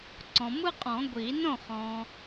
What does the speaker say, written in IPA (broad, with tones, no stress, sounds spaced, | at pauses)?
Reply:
ǀ ɔ̃˨ m ɯ˦ qʼ ɔ̃˨˩˦ ɡʷ i˨˩˦ n õ˥˩ χ ɔ̃˨